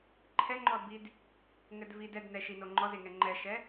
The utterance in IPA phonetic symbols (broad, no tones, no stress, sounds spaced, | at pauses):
ǃʰ ɛ ŋ͡ǃ ɔ d b i d | ŋ ɘ d v i d ɛ d n ɛ ʃ i n o ŋ͡ǃ ɔ z e ŋ ɛ ŋ͡ǃ ɛ ʃ ɛ